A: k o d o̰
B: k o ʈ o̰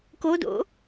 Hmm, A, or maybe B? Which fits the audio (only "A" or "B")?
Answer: A